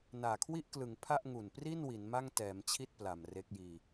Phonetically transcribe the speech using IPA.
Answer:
n aː˨˩ kʰ w i˥˩ ʔ k l ɯ˩˦ ŋ pʰ a˥˩ ʔ ŋ u˨˩ n p r i˥˩ n w i˩˦ n m a˥˩ ŋ t ɛː˩˦ m t͡ɕʰ i˥˩ t̚ p l a˨˩ m r e˦˥ k̚ j iː˧

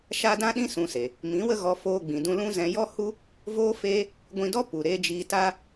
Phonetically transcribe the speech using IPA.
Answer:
ʃ a˧ d ã˦ ɗ ĩ˦ s ũ˧ s e˨ | m ĩ˨˦ w ə˦ ɣ ɔ˧ f oː˧ ɡ͡b ĩ˨ d ũ˧ l ũ˦ z ɛ̃˧ j ɔ˦ h u˦ | v oː˦ f eː˦ | ɡʷ ĩ˧ d ɔ˦ p u˨ ɾ eː˧ d͡ʒ iː˧ t a˦

